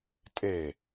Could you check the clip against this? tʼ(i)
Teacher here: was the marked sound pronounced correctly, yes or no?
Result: no